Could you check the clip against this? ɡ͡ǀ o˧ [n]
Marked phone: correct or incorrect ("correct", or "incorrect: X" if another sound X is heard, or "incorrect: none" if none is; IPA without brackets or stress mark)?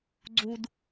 incorrect: d